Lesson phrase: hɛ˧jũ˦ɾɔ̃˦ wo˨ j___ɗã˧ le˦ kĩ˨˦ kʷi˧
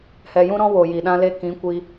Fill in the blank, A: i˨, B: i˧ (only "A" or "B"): A